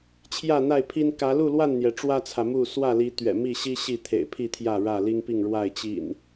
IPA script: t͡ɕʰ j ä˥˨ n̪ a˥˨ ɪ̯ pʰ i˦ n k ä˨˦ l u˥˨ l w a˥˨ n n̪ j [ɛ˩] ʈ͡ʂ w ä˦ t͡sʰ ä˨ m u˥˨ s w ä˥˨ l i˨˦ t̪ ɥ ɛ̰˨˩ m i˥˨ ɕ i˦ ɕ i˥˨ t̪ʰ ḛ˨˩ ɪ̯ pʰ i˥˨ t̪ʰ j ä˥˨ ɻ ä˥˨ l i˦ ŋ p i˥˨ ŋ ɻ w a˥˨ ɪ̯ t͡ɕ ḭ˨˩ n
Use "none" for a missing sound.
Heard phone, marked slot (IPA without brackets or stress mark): ɛ˩